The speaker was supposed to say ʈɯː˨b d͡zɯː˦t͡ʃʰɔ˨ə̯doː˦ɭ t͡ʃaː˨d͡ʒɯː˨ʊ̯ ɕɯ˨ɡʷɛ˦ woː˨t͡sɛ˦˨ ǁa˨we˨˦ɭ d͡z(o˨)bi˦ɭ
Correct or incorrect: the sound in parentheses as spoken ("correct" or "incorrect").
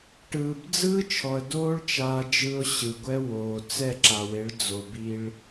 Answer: correct